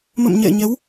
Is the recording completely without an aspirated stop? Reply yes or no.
yes